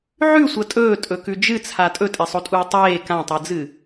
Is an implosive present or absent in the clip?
absent